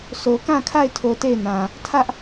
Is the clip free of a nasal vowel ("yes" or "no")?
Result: no